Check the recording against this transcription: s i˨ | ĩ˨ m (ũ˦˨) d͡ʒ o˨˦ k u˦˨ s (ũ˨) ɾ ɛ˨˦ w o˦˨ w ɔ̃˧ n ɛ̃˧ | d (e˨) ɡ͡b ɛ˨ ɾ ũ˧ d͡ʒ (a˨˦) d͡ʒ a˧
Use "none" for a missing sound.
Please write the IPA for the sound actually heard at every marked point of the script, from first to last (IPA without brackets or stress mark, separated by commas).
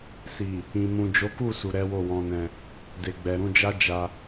ũ˨, u˨, e˨, a˦